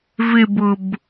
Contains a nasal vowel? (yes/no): no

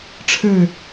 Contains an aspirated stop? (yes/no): yes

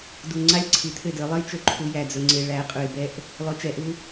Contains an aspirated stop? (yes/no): yes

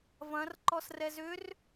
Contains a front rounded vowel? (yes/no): yes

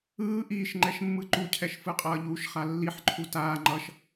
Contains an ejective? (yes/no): yes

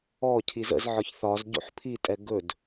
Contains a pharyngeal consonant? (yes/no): yes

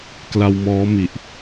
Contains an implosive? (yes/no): no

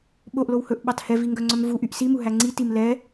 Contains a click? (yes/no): yes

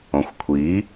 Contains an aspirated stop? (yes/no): yes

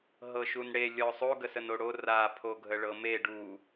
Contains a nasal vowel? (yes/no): no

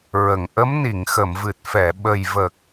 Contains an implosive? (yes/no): yes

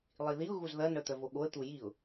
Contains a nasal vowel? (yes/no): no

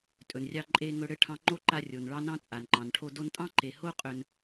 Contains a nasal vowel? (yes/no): yes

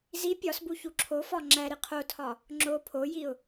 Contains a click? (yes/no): yes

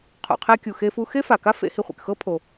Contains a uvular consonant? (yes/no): yes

